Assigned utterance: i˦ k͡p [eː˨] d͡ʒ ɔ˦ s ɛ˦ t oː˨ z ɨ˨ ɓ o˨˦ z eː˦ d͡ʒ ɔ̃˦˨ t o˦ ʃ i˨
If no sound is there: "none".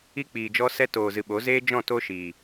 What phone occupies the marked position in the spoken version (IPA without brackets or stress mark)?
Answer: iː˨